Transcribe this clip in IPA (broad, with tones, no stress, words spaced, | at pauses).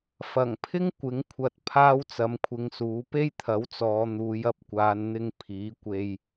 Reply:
fɐ˨˩ŋpʰɪ˥ŋ kʷɪ˨˥ŋkʷʰɐ˧t̚ pʰaː˥wt͡sɐ˨˥mkʷʰɪ˧ŋsuː˨˥ pe˥jt̪ʰɐ˨˥wt͡sɔː˨˧ n̪uː˨˧jɐ˧p̚kʷaː˨˧nn̪ɪ˧ŋ pʰiː˨˥kʷe˧j